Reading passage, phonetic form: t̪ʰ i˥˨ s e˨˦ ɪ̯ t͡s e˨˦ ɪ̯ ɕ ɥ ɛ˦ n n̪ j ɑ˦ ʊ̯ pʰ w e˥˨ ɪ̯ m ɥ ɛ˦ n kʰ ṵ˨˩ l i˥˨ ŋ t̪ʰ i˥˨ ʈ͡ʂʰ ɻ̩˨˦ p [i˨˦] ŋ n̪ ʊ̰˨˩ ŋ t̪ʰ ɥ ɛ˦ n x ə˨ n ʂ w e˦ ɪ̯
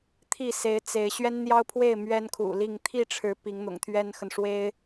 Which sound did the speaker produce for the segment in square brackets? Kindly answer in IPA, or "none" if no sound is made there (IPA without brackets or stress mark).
i˨˦